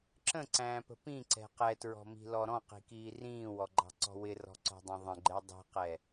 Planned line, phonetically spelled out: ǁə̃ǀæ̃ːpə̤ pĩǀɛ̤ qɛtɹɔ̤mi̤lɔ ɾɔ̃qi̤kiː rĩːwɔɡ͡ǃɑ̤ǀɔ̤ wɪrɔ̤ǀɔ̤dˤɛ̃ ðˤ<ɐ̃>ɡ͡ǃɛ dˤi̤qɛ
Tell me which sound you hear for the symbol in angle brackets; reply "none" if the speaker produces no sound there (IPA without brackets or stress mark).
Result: ə̃